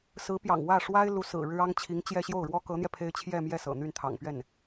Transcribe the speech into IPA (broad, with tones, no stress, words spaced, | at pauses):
sɹ̩˧˥pjɑ̰˨˩ŋ wä˥˩ ʂwa˥ɪ̯ lu˧˥sɹ̩˨˩ɻɻ̩˥ ɑ˥ŋt͡ɕʰi˧˥ŋt͡ɕjɛ˥˧ ɕjo˥˩ʊ̯ɻwɔ˥kɤ˧˥n̪jɛ˧ pʰe˥ɪ̯ t͡ɕʰjɛ˥˧mjɛ˥˩ sɤ̰˨˩n̪y˥˩nt̪ʰɑ̰˨˩ŋpɥɛ˥˩n